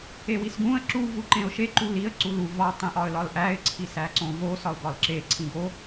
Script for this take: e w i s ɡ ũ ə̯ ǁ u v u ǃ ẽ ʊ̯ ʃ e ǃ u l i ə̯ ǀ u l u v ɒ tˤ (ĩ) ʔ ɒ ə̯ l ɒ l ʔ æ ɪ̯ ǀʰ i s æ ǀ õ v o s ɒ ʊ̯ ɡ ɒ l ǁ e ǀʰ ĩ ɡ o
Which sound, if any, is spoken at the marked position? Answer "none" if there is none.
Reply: ẽ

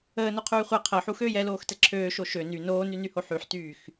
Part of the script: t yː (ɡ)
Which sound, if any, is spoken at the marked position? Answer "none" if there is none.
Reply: x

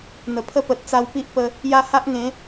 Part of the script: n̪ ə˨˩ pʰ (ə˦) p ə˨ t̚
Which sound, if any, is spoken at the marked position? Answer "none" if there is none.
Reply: ə˦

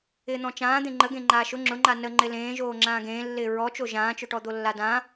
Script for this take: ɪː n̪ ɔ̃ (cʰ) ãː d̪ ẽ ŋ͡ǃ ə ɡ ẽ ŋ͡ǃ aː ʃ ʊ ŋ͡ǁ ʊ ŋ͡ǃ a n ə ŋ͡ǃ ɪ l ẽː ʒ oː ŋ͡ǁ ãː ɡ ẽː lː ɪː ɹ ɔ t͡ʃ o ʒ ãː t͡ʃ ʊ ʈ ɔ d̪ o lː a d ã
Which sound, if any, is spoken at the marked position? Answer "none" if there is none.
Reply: t͡ʃ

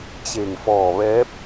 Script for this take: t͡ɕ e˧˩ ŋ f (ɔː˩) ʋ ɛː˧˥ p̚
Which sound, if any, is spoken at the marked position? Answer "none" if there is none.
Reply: ɔː˧˩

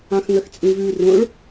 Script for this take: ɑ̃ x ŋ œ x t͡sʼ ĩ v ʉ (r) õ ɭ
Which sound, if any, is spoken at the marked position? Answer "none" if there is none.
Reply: r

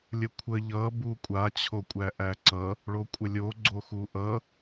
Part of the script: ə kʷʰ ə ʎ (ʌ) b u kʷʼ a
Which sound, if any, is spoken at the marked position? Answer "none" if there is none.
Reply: ʌ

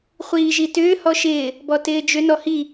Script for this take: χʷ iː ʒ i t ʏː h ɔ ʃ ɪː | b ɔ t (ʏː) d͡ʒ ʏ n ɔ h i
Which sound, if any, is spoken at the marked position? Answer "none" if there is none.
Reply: ɪː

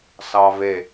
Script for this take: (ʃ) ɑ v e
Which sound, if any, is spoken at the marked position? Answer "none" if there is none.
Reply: s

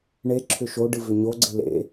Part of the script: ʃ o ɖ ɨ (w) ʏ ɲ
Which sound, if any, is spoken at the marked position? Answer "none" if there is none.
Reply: v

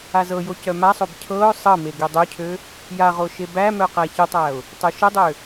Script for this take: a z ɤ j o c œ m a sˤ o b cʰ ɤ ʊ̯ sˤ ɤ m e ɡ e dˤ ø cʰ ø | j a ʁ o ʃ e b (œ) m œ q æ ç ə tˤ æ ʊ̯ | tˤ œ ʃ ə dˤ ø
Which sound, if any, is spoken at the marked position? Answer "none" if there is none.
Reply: æ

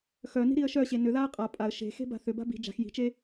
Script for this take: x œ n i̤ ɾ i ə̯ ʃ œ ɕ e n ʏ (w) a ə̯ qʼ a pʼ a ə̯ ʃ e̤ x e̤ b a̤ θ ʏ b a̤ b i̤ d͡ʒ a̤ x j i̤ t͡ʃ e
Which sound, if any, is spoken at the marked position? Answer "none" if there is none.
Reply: ð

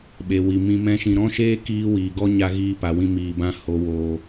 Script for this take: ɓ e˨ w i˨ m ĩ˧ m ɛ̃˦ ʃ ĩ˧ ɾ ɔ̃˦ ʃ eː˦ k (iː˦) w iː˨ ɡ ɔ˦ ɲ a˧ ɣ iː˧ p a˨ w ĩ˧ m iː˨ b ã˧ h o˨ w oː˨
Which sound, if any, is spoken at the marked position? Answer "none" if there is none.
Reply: iː˦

